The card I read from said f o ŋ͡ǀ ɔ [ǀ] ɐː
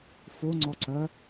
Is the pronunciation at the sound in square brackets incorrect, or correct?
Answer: correct